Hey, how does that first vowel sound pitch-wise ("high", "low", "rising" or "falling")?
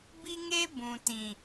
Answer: high